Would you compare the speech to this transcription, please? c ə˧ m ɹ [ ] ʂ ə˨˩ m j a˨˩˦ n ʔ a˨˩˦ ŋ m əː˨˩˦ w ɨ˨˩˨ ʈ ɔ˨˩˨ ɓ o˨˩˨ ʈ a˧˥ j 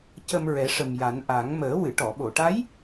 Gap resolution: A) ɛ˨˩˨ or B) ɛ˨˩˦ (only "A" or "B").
B